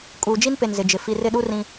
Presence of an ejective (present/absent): present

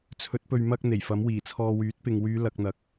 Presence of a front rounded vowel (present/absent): present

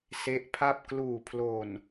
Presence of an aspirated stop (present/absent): present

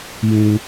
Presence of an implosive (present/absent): absent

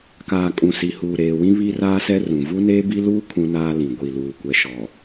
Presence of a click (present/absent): absent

